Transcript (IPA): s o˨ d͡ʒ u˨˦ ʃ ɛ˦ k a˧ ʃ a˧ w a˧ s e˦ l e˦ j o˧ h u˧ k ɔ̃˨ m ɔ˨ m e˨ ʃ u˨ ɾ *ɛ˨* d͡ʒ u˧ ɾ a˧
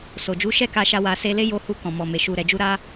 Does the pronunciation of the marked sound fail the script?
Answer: no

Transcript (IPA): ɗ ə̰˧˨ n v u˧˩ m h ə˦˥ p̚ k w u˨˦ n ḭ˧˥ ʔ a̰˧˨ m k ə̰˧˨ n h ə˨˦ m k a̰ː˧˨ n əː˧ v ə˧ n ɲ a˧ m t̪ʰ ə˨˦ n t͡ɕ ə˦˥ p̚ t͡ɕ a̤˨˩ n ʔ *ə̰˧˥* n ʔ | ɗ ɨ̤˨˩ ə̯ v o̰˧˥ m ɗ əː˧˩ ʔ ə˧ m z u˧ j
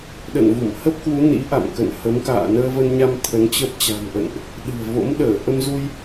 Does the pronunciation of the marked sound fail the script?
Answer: yes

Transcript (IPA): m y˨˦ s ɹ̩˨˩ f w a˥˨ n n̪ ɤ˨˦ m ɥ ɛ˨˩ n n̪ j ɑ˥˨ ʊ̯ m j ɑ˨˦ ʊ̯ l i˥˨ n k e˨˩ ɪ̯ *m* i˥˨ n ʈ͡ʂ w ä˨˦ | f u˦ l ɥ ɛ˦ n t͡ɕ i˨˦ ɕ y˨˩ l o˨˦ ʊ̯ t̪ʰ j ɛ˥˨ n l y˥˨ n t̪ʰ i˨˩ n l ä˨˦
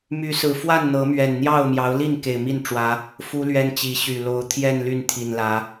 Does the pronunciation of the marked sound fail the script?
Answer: no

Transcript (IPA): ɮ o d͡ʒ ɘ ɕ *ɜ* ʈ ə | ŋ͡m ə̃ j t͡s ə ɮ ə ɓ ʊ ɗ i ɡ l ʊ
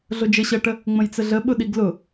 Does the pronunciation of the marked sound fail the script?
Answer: no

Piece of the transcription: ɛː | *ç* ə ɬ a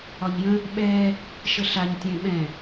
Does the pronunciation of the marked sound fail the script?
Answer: yes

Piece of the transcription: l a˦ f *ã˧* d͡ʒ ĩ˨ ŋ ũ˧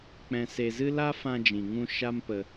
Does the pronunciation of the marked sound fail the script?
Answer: no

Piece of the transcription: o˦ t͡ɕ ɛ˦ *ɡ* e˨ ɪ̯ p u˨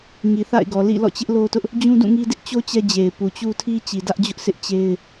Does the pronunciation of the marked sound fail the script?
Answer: yes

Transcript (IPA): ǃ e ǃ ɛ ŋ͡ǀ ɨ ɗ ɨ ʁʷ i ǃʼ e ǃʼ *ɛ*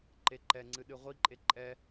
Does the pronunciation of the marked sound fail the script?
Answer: no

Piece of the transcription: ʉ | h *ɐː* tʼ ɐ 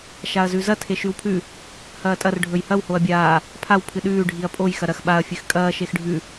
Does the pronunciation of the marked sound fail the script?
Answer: no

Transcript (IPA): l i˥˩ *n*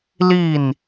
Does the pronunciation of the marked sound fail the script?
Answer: no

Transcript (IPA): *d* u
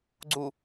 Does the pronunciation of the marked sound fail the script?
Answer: yes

